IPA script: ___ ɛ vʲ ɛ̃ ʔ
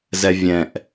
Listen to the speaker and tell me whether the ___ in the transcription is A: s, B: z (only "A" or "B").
B